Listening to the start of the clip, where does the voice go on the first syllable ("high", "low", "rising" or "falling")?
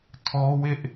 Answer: high